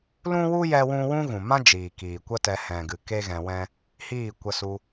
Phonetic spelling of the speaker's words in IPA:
l ũ˦ w u˦ j ɛ˦ w ũ˦ w ũ˦ ɣ ũ˨ m ã˦ d͡ʒ iː˨ k iː˨ kʷ ə˦ t ɛ˧ h ɛ̃˨ ɡ ɨ˨ k e˦ ɣ ɛ̃˧ w ɛ̃˦ | h iː˦˨ kʷ ə˧ s u˧

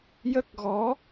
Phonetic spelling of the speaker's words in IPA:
j ə˦˥ k̚ ɣ ɔ˧˥

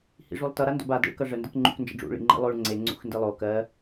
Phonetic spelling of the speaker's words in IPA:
h ḭ ʐ u lˠ t ʌ ɾ a n d o̰ b a d ḛ ɭ k ʌ ʐ ə n d ə k ŋ͡ǃ ṵ k n d͡ʒ ə̰ ɖ͡ʐ ṵ ɭ ḭ ŋ͡ǃ ḭ lˠ o ɭ ŋ͡ǀ e ŋ͡ǀ ṵ x n d i lˠ o k ɜ

